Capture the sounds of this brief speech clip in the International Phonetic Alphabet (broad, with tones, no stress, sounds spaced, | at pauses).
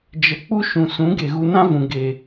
d͡ʒ ə˧ k͡p u˦ ʃ ũ˨ s ũ˨˦ ɡ e˨ ɣ u˧ n ã˦ v ũ˨ ɡ e˧